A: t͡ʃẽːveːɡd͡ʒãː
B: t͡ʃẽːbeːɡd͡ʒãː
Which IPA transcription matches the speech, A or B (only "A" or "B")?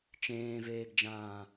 A